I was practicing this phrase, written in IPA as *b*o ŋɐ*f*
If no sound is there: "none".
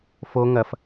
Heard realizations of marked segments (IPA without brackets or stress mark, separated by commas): f, f